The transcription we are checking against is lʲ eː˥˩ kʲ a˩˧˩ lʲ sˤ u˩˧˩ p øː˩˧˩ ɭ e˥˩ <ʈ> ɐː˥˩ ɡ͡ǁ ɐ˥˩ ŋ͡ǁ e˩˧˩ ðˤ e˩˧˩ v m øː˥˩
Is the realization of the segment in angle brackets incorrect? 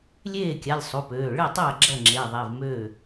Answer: yes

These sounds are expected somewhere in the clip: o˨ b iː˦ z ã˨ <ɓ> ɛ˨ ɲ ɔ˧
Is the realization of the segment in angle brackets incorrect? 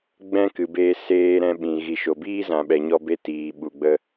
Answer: no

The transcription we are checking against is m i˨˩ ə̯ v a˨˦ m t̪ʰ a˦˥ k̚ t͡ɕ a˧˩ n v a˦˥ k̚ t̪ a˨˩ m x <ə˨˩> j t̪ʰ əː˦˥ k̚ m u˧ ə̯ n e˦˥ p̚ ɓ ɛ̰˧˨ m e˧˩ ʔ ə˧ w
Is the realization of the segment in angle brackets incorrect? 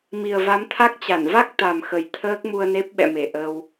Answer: no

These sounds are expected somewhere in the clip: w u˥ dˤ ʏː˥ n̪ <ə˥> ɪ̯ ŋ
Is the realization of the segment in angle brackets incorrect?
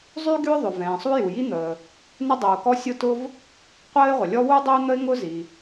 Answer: no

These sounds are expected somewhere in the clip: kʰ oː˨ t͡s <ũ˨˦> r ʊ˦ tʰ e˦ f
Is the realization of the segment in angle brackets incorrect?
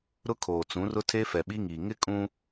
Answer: no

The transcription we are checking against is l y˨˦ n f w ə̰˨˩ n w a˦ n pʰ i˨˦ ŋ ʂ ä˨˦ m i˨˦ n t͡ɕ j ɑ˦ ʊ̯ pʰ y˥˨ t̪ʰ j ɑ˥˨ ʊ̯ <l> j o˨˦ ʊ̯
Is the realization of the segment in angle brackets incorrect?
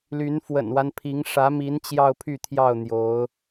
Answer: yes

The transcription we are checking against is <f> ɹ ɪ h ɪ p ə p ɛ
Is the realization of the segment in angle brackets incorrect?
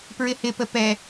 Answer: yes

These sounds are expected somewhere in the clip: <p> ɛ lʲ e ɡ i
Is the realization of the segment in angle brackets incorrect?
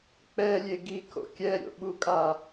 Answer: yes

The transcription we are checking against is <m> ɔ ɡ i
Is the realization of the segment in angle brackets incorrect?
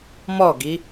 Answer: no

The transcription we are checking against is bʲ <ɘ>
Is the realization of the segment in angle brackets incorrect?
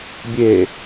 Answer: yes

